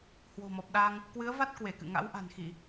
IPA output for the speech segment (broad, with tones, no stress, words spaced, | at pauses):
hwo̤˨˩mɔ˨˩p̚ɗa˧ŋ | kwɨ˨˦ə̯va˦˥t̚ kwe˧˩kɨ̰˧˨ ŋa̰˧˥wʔa̤˨˩nxi˧˩˨